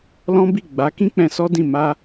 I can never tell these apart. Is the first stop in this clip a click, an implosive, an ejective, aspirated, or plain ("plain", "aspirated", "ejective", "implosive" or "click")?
plain